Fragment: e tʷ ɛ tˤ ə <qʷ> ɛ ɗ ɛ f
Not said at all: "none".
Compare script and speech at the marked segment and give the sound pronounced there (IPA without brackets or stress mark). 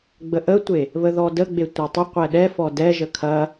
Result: qʷ